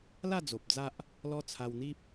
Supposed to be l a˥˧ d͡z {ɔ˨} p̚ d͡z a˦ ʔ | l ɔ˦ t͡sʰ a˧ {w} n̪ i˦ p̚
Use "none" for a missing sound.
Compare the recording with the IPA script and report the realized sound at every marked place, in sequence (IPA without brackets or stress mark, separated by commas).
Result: o˨, w